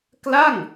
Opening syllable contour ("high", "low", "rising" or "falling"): falling